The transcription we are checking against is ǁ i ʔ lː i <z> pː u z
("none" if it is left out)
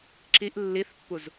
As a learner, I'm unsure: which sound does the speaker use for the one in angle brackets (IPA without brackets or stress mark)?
θ